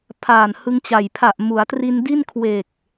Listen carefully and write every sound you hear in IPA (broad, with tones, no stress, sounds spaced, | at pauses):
pʰ aː˨˩ n h ɯ˧ ŋ t͡ɕ a˨˩ j pʰ a˨˩ ʔ m u˩˦ a̯ t r i˧ n d i˥˩ n kʰ w e˨˩ k̚